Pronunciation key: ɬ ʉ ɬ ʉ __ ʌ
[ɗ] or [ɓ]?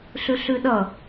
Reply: ɗ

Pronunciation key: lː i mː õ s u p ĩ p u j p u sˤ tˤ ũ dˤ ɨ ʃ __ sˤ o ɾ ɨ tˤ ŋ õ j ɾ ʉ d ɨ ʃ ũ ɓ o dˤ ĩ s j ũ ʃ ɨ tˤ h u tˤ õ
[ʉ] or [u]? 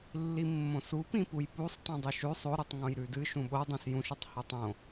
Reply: ʉ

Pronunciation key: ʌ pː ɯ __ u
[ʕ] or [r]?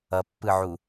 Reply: ʕ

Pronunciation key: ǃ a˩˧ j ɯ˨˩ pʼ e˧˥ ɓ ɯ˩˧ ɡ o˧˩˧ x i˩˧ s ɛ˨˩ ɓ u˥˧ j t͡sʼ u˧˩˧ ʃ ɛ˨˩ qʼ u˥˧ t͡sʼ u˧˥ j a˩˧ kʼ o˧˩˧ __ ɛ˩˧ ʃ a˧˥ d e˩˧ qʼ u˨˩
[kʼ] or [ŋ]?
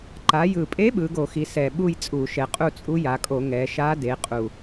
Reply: ŋ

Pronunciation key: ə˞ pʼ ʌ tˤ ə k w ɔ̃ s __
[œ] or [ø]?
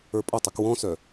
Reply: œ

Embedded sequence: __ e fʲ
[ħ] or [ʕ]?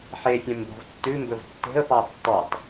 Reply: ħ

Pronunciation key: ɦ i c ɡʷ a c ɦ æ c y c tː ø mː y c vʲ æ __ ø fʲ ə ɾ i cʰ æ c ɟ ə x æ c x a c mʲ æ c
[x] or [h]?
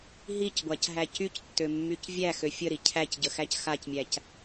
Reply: x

